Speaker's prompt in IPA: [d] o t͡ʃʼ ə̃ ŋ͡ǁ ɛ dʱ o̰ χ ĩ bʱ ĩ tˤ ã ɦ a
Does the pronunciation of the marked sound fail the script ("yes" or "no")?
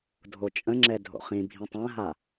yes